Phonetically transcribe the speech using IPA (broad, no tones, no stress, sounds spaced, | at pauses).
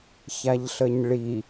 ç a ʎ ɬ ə ɲ ɭ i